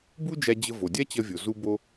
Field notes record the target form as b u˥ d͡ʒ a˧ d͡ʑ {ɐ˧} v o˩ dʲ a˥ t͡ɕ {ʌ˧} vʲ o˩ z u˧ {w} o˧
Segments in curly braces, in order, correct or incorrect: incorrect, correct, incorrect

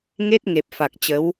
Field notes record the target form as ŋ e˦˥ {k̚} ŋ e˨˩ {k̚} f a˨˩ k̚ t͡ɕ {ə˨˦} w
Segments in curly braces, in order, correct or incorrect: incorrect, incorrect, correct

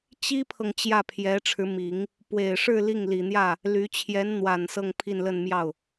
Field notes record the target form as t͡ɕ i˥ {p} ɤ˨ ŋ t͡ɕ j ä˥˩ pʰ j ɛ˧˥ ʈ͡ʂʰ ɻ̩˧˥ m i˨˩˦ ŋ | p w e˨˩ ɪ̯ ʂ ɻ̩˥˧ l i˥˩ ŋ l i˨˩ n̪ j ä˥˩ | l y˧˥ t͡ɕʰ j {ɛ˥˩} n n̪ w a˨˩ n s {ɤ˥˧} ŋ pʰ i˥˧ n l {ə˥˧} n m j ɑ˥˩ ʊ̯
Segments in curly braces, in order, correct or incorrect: incorrect, incorrect, correct, correct

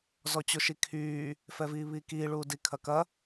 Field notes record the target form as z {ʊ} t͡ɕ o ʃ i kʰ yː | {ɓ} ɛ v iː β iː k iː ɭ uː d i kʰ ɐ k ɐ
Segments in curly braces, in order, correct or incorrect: incorrect, incorrect

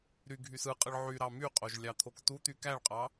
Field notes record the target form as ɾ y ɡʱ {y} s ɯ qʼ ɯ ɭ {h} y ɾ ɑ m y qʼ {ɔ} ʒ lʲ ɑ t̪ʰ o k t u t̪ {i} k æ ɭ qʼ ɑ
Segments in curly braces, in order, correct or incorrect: correct, incorrect, incorrect, incorrect

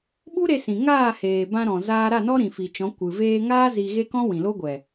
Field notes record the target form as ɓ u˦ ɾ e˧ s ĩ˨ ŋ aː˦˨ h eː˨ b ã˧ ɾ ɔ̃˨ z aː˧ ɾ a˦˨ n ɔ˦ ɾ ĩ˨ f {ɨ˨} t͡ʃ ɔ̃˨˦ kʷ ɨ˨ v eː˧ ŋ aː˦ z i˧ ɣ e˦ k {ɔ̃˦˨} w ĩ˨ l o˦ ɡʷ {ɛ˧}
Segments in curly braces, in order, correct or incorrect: incorrect, incorrect, incorrect

